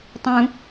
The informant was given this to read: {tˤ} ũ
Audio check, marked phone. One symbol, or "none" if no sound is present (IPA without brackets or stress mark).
tˤ